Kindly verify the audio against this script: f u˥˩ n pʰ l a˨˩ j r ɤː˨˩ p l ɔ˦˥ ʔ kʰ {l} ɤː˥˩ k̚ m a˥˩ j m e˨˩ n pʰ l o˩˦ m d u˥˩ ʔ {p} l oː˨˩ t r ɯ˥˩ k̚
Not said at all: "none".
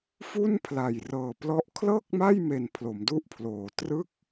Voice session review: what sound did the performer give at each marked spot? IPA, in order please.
l, pʰ

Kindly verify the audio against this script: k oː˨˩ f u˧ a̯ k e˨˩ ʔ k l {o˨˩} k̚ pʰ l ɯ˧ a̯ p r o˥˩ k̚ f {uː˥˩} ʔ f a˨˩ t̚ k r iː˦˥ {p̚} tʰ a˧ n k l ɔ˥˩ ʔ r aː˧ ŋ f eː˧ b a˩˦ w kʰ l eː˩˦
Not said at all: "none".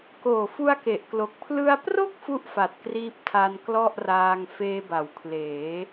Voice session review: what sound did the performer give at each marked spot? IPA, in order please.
o˨˩, u˥˩, p̚

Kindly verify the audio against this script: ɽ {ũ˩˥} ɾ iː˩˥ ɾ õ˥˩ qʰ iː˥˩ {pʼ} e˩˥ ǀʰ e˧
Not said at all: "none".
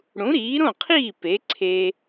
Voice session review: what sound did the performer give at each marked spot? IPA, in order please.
ũ˩˥, p

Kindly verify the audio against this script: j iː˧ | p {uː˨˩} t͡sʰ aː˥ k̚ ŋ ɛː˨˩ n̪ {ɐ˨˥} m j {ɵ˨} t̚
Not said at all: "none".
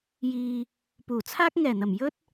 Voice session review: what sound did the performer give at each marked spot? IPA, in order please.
uː˨˩, ɐ˨˩, ɵ˥

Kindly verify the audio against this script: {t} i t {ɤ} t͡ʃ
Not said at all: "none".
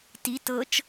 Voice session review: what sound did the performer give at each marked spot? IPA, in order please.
t, ɤ

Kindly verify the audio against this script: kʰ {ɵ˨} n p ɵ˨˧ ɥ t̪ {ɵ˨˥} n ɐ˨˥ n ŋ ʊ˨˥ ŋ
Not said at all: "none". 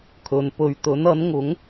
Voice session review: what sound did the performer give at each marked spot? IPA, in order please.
ɵ˨, ɵ˨˥

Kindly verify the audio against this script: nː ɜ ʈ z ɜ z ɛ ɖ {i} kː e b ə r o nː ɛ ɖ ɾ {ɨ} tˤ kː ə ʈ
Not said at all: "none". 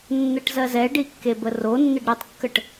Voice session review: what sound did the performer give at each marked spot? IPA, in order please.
i, ɨ

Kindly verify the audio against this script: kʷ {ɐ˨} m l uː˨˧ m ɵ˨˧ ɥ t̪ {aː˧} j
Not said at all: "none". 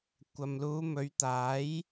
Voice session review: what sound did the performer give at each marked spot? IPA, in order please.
ɐ˨, aː˨˥

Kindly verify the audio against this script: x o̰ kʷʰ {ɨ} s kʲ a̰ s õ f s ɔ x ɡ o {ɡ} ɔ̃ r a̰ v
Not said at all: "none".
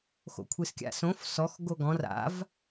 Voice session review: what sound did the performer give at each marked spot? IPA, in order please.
ɨ, ɡ

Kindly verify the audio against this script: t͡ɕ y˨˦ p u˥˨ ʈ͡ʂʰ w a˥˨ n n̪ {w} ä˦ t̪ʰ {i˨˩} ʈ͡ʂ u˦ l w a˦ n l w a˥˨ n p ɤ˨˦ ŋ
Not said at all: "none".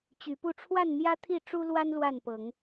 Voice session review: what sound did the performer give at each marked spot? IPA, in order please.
j, i˥˨

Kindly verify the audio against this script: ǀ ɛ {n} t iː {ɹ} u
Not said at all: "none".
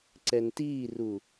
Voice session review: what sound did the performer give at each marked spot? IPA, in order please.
n, r

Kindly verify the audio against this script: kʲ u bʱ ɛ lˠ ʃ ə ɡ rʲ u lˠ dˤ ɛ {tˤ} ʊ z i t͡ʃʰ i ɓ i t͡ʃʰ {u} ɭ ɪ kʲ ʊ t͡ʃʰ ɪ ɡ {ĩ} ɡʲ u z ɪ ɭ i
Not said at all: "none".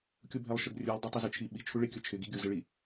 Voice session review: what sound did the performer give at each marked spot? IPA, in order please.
tˤ, u, i

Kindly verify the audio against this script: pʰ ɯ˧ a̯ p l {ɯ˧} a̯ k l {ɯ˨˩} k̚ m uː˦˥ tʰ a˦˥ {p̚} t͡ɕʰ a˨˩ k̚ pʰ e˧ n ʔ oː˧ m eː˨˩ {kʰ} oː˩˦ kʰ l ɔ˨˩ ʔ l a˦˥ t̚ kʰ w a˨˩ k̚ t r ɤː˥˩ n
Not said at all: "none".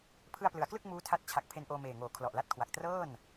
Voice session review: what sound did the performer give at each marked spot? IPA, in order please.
ɯ˩˦, ɯ˥˩, t̚, ŋ

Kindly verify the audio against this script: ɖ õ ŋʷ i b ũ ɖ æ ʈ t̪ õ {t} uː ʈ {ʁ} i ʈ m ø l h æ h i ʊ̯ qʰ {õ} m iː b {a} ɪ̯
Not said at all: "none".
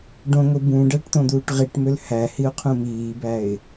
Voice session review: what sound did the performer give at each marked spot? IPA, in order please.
d̪, ʁ, ũ, æ

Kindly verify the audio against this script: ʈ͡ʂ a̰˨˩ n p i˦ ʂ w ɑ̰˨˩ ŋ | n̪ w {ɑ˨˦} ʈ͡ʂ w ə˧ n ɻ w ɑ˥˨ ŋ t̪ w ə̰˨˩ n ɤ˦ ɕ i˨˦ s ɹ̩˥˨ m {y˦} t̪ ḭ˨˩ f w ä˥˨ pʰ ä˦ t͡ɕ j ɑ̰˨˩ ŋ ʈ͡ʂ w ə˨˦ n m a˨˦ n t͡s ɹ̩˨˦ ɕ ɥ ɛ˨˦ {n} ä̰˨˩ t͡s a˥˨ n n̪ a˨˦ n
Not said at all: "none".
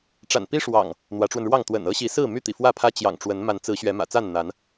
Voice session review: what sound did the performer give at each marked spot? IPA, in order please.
ä˨˦, y˦, m

